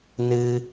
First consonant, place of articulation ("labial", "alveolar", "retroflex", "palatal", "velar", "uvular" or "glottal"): alveolar